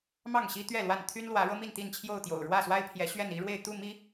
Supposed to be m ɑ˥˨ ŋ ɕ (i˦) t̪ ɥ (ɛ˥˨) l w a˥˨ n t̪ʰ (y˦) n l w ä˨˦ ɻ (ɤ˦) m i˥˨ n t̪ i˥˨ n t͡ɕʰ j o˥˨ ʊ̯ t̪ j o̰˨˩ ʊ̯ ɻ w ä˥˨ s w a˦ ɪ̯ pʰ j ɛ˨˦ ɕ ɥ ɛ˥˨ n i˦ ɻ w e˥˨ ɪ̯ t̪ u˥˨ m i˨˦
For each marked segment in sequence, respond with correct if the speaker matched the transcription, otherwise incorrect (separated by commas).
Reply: correct, correct, correct, correct